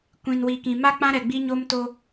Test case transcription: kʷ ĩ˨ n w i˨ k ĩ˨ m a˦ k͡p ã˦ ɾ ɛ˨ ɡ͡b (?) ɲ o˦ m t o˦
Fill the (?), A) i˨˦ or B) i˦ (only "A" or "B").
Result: B